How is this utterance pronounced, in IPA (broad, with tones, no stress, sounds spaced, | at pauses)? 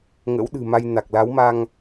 ŋ ə̰˧˥ w ɗ ɨ̤˨˩ m a˧ j n a˨˩ k̚ l a˨˦ w m a˧ ŋ